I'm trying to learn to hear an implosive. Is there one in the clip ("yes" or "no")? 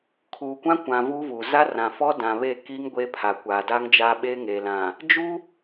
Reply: yes